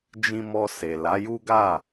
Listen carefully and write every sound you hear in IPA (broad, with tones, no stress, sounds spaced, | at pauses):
d͡ʒ ĩ˧ m ɔ˧ s e˨ l a˨˦ j u˦ ɡ a˦˨